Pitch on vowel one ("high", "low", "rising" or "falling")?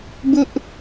high